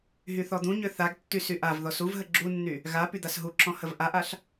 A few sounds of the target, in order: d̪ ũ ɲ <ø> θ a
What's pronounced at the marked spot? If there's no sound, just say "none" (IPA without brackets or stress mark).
ø